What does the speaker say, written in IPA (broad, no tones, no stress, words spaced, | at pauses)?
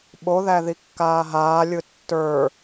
ɓoðæ ðikːaːɦaːlʲɯ tːə˞